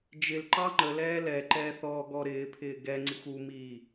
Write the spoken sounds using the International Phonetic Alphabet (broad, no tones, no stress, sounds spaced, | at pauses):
d͡ʒ ɪ l ǃ ɑ ŋ͡ǃ ə l ɛː l ɛ ǃ ɛː θ ɔ ɡ ɔ ɾ ɪː pʰ ɪː ɡ ɛ ŋ͡ǀ i xʷ u m iː